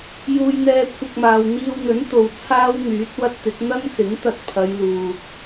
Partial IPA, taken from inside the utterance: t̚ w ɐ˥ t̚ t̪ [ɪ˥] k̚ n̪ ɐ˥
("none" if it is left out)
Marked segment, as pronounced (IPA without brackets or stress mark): ɪ˨˥